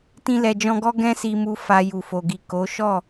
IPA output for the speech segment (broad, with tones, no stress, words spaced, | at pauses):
tĩ˧lɛ˨d͡ʒɔ̃˧ɡɔ˦ ɡɛ̃˦si˧mu˧ fa˧ju˨fo˨ɡi˨ ko˨˦ ʃɔ˦˨